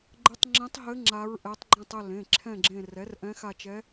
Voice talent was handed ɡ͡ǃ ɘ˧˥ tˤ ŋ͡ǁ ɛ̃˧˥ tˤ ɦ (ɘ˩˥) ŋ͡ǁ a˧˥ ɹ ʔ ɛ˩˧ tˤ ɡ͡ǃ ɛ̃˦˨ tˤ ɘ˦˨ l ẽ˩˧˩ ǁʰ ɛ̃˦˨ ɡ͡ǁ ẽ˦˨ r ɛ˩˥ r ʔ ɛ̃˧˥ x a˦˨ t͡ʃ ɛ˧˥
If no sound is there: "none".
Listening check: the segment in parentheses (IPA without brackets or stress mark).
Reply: ɘ˧˥